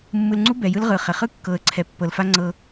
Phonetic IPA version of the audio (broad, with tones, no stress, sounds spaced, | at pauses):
mː ɯ˨ l ŋ͡ǀ u˦ b ɛ˨ j ɯ˦ l ʁ ɯ˨ χ e˨ χ ɯ˦ kː ɤ˨ ə̯ ǀʰ ɛ˨ pː ɤ˨ l f a˦ ŋ͡ǀ ɤ˦